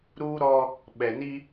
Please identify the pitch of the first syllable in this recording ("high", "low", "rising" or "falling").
high